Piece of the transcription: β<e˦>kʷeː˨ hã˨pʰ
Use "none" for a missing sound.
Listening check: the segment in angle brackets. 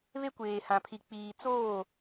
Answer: e˦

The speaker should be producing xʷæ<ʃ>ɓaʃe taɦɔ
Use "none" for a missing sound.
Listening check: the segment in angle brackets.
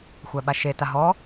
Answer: none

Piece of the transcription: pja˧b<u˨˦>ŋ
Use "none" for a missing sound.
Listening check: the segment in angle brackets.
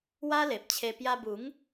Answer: u˨˦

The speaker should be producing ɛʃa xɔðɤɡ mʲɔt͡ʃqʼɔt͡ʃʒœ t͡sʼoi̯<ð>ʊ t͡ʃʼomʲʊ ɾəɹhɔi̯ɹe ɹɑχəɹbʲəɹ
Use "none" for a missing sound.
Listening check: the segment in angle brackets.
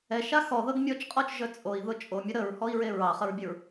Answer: ð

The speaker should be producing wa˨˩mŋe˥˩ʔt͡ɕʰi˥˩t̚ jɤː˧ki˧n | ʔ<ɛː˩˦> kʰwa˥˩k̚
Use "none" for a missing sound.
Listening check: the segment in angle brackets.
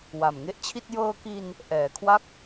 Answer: ɛː˩˦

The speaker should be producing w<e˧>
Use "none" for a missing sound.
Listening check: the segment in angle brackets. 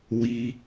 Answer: i˧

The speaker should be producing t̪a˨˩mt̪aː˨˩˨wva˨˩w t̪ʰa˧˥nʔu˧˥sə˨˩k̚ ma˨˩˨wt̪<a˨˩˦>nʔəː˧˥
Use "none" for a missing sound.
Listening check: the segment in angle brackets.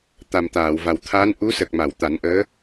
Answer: a˨˩˦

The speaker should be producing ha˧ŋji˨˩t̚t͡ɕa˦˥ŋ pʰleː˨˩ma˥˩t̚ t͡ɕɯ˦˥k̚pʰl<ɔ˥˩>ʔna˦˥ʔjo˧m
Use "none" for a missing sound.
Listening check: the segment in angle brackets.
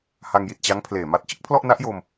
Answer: ɔ˥˩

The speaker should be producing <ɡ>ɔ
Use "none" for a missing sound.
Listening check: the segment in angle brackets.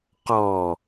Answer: q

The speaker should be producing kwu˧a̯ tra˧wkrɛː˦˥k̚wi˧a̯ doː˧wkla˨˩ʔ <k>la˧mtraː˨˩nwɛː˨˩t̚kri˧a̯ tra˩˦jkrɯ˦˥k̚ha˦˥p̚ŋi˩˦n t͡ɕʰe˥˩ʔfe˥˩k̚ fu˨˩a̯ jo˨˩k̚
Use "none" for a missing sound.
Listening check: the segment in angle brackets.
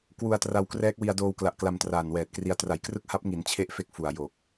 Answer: k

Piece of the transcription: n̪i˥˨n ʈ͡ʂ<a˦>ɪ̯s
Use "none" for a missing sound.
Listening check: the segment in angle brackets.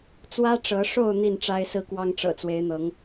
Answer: a˦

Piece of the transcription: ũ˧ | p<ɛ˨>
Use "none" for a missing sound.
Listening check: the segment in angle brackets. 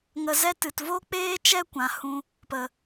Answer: ə˨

